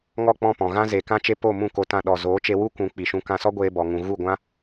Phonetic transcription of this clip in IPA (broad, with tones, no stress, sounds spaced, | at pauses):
ŋ ɔ˦˨ k͡p ɔ̃˦˨ p ɔ̃˨ ɣ ã˦ z e˨ k ã˦ t͡ʃ e˦ p o˦˨ m ũ˦˨ k o˧ t ã˧ ɗ ɔ˨ z oː˨˦ t͡ʃ e˧ w u˦ kʷ ũ˨˦ k͡p i˨ ʃ ũ˧ k ã˧ s ɔ˦ ɡʷ eː˧ b ɔ˧ ŋ ũ˧ ɣ u˦˨ ɡʷ ã˦